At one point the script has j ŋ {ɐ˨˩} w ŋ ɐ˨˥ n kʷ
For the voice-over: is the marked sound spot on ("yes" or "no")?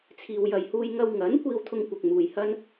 no